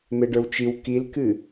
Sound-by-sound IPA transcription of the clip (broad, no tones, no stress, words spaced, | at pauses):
meɖə˞wt͡ʃiw kilkɨ